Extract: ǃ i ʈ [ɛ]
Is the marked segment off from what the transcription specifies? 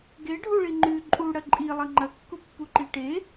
yes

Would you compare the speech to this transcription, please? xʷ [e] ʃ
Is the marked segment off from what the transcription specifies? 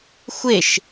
no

